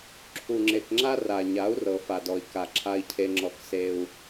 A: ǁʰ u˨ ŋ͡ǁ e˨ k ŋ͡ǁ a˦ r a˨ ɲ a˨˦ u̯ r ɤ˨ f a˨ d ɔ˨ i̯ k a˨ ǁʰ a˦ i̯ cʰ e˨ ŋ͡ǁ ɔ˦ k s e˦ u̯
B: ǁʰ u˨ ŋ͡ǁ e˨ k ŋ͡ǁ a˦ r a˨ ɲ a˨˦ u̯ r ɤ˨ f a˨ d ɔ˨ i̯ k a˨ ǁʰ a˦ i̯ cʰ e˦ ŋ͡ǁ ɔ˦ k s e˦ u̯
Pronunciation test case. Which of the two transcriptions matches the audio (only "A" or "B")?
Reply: B